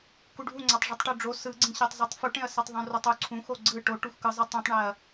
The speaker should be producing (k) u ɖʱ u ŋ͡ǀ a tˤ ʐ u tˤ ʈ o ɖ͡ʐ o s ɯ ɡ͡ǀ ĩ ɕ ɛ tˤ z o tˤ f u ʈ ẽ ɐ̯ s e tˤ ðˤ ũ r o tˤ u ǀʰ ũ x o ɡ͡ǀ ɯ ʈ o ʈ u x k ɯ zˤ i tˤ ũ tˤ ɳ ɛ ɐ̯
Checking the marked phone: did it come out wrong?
no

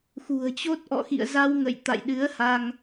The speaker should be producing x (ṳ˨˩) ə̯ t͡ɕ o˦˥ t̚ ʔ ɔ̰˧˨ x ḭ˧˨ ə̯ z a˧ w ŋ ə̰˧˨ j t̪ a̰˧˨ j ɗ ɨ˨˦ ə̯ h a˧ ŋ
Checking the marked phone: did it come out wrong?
no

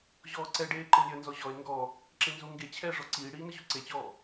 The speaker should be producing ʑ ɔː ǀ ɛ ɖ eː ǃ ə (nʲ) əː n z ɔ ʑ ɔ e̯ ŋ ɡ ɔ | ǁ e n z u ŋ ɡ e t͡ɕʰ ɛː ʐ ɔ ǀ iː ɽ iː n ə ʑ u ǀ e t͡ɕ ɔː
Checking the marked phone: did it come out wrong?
no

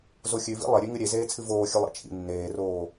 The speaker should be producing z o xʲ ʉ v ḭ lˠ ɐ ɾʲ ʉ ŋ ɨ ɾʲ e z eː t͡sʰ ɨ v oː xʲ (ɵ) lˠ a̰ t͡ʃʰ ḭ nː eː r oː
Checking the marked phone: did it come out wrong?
no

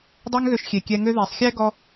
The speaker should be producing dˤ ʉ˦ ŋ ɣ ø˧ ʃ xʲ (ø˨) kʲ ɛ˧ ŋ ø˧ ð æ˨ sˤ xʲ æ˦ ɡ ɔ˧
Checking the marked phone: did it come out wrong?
yes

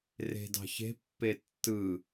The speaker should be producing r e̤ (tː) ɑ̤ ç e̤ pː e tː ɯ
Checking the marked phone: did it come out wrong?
yes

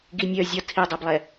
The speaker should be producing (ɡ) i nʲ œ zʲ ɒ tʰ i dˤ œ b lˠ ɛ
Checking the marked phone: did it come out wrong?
no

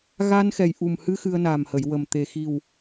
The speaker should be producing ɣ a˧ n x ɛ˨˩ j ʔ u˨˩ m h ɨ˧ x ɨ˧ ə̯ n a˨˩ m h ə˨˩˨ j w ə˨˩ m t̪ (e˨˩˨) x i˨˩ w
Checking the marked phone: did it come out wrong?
yes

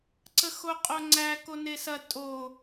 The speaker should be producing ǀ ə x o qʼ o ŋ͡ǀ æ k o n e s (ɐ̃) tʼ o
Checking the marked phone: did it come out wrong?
yes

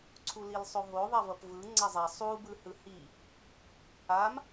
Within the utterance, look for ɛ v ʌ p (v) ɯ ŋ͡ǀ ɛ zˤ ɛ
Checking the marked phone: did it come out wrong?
no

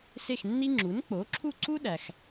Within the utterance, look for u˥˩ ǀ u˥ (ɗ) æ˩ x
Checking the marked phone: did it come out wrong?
no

